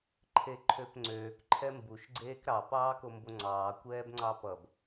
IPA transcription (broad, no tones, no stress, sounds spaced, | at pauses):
ǃʰ e ǃʰ ø p ŋ͡ǀ øː k ǃʰ ɛ m b u ʃ ɡ͡ǀ eː k ɾ ɑ p ɑː k o m b o ŋ͡ǀ ɑː kʷ ɛː b ŋ͡ǀ ɑ p ʌ b